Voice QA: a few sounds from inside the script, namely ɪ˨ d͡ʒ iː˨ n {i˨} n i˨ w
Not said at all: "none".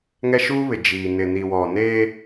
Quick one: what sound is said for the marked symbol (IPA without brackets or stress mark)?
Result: ɪ˨